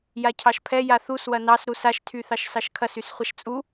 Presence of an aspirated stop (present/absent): present